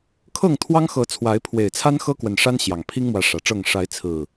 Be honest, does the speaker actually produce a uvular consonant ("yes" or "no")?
no